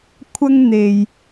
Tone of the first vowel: high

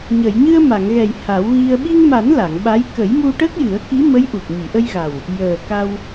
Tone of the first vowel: low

